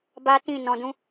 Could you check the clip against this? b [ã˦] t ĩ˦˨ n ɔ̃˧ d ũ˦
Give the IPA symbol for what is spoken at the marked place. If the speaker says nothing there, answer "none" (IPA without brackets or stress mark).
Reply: a˦